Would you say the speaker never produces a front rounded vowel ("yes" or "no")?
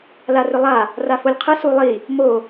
no